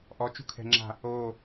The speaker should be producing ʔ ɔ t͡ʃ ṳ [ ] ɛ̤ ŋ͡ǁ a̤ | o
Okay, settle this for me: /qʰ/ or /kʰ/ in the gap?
kʰ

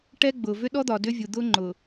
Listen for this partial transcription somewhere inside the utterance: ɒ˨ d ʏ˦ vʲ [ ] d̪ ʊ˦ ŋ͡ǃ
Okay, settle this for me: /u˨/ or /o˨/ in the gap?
u˨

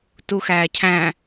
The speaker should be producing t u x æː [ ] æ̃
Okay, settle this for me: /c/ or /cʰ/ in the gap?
cʰ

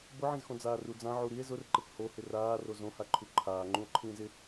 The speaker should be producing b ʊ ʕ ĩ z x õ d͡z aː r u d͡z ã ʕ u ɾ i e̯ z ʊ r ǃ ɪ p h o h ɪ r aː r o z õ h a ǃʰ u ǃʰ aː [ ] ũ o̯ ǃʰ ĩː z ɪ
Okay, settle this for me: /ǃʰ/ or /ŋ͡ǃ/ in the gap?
ŋ͡ǃ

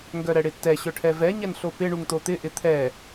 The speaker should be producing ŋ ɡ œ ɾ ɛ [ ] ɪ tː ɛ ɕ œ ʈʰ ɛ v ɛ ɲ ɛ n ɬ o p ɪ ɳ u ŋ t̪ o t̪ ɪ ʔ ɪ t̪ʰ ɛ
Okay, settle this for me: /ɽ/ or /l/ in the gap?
ɽ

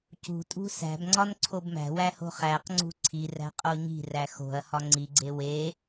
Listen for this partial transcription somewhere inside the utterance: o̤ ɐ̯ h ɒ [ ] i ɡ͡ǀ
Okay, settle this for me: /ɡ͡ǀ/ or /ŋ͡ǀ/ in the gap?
ŋ͡ǀ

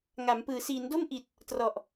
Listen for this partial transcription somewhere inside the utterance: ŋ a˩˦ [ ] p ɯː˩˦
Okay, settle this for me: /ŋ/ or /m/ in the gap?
m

